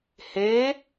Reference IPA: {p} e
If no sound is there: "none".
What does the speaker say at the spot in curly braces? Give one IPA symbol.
h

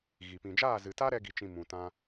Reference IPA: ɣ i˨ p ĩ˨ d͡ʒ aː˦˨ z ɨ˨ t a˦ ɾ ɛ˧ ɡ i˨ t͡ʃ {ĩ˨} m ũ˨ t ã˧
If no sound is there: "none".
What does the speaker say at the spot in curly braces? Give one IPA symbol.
ĩ˨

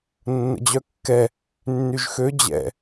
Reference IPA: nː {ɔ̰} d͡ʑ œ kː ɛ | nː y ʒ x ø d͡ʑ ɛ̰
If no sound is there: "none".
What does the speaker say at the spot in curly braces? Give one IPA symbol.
ə̰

